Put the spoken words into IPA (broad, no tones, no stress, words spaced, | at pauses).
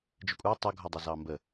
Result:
d͡ʒəkʷʼɑ tˤʊ ɡʱɔdˤʌzɑmbə